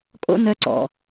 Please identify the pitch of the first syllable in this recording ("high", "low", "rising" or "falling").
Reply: high